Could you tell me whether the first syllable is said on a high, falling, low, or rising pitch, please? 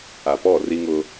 low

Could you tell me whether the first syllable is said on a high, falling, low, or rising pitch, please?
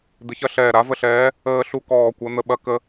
rising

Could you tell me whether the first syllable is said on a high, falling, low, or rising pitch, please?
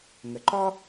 low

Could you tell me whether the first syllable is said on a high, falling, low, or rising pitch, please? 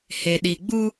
low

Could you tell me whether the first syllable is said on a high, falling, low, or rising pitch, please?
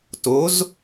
rising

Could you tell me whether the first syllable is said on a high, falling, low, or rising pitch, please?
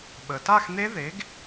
low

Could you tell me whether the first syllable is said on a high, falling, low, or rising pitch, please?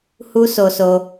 high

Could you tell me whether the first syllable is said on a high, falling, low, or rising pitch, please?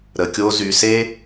low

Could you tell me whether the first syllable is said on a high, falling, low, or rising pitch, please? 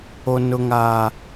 low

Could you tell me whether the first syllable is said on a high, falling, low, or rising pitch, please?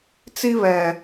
high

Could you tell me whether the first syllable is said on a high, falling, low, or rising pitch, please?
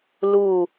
low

